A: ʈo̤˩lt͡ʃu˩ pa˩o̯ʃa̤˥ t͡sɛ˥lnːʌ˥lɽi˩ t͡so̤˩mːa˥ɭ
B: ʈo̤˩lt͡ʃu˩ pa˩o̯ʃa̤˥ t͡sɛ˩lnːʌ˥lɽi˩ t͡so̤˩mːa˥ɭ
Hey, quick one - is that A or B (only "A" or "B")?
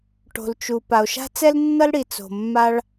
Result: A